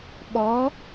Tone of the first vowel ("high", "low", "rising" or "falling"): rising